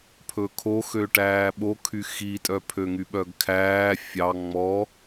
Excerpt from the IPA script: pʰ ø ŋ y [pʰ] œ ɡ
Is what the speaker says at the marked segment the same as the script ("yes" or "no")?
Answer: no